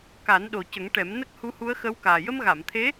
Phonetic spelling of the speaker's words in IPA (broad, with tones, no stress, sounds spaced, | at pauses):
k a˨˩˦ n ɗ o˨˩ c ə˨˩˦ ŋ ʈ ɛ˨˩˦ m n ə˦˥ k̚ h u˧˥ h u˧˥ ə̯ x ə˧˥ w k aː˨˩ j ə˧ m ɣ a˨˩˨ m t̪ʰ e˧˥